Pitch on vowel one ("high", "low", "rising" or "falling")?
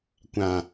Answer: low